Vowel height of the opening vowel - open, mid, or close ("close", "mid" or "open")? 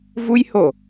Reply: close